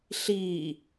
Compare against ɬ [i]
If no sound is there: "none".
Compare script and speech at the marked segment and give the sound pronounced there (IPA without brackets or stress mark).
iː